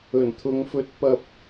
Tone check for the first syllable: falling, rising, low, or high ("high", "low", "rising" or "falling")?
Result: low